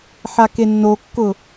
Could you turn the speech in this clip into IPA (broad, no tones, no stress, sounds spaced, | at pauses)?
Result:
ħ a k e nː o kː ʊ